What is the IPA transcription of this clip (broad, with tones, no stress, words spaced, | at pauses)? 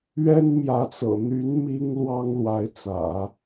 ɥɛ˥nmjä˧˥t͡sɤ̰˨˩ n̪y˧˥n mi˥ŋlwɑ˥ŋlwa˧˥ɪ̯ t͡sä̰˨˩˦